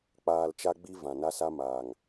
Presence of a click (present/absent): absent